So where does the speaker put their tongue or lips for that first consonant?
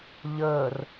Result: palate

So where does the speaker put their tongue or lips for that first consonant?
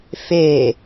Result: lips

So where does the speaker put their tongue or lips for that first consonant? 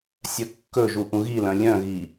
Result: tongue tip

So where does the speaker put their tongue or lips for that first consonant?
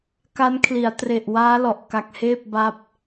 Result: velum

